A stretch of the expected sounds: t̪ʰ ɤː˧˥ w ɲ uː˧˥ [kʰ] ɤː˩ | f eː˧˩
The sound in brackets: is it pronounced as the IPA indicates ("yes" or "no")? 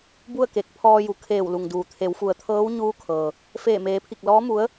yes